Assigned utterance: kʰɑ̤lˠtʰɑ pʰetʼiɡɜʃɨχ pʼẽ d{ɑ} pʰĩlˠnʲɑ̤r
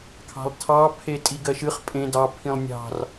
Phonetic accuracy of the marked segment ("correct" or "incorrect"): correct